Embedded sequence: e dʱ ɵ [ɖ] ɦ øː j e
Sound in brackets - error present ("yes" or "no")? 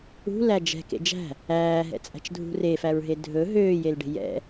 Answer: yes